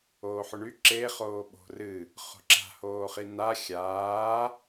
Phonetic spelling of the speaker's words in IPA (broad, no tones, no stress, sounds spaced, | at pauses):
oː ħ ʊ ɳ y ǁ e χ oː ɓ o̤ r ɨ | χ o̤ ǁ a̤ h oː χ i n a xʲ aː